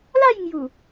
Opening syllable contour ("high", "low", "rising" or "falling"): falling